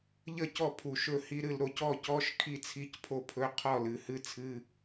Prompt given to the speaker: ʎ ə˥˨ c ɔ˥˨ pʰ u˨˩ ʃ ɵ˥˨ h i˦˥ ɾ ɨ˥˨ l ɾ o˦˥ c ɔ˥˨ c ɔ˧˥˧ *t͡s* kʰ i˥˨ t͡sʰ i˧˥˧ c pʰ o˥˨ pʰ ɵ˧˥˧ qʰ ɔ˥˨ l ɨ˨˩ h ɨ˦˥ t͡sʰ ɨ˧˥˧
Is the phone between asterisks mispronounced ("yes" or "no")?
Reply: yes